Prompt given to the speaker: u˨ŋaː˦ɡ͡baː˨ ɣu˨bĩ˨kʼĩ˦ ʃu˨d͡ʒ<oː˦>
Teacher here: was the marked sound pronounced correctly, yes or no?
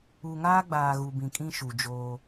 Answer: yes